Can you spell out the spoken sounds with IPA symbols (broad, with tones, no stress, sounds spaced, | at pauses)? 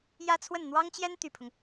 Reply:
j ä˥ t͡sʰ w ə˥˩ n n̪ w ɑ˥ ŋ t͡ɕ j ɛ˥ n t̪ y˨˩ pʰ ʊ˦ ŋ